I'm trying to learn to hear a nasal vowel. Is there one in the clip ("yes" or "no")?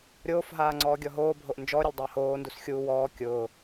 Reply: no